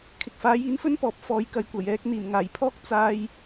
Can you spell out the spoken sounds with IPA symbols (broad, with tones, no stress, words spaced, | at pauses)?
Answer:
kʰɪ˨k̚faː˨˥jiː˨˥nfɵ˥n pɔː˨˥p̚ fɔː˨jkɐ˨jkʷɐ˨˩jɛː˧k̚ n̪iː˨˩nŋaː˨˩jpʰɔː˥k̚ t͡saː˨j